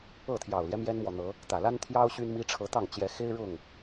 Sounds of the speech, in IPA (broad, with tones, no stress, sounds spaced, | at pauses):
ɤ˥˨ t̪ʰ j ɑ˨˩ ʊ̯ l j ɛ˦ m j ɛ˦ n m w ɔ˨ n̪ ɤ˨˦ | t̪ ä˨˩ l a˦ n t̪ʰ j ɑ˦ ʊ̯ ɕ y˦ n m i˦ ʈ͡ʂʰ ɤ˨˦ t̪ ɑ˥˨ ŋ t͡ɕ j ɛ˨˦ x e˦ ɪ̯ ɻ ʊ˥˨ ŋ